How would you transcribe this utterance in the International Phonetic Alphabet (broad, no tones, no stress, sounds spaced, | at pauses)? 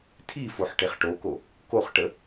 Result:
tʰ i f o ħ ʈ e χ ʈ o k o | k o χ ʈ ə